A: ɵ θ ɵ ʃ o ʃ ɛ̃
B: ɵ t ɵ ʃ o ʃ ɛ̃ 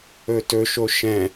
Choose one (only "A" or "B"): B